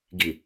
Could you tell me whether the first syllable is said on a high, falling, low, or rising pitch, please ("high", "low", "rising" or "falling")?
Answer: low